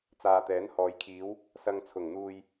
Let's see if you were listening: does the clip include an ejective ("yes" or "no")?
no